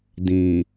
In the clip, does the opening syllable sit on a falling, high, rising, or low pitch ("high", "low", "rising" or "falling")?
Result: low